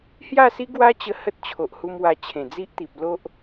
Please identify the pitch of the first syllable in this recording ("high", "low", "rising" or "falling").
falling